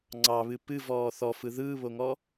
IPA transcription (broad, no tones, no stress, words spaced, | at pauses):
ŋ͡ǀɑβɨ pɨvɔː θɔfɯ ðɯːβoŋɔ